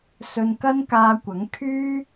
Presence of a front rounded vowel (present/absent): present